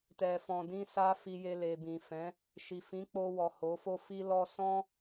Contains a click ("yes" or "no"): no